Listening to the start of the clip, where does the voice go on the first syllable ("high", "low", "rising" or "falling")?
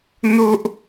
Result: high